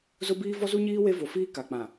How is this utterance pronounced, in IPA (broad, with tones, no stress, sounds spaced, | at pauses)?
z ʊ˦ b iː˦ v ɔ˦ z u˦ ɲ iː˦ w e˦ v o˨ f iː˦ k a˨ k͡p ã˨